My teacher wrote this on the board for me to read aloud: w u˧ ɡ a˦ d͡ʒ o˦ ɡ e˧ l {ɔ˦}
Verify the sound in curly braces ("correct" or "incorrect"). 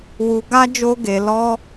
correct